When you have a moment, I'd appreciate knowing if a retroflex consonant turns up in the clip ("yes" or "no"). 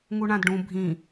yes